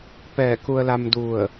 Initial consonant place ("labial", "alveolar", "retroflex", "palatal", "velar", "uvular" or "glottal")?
labial